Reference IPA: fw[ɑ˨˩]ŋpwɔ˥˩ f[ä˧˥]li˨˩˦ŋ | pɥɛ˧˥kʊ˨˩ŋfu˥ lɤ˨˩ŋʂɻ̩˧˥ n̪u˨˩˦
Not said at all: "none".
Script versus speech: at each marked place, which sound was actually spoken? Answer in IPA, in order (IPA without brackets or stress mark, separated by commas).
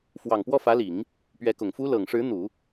ɑ˨˩, ä˧˥